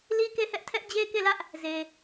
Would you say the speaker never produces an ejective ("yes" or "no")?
yes